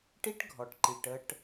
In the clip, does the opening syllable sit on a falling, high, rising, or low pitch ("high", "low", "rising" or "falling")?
high